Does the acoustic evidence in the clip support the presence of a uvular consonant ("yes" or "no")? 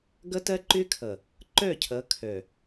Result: no